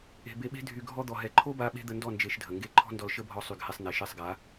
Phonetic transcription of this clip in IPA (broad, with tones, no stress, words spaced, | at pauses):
e̤˧ be˧ɓe̤˦ dʱy˧ɡʱɔ˦ d̪ɔ˨ɦɛ˨ǃʰo˦ba˧ ɓe̤˦d̪ə˧ndɔ˦˨ nd͡ʒe˧ʃdʱə˨ŋɡe˦ ǃʰɔ̤˦ndɔ˧l ʃə˦bʱɔ˧sˤy˨ɡ hɛ˧sˤn̪ɛ˨ ʃɛ˦˨sˤɡa˨˦